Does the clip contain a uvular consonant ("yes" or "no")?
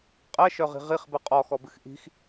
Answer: yes